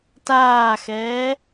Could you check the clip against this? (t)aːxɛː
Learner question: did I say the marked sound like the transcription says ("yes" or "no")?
yes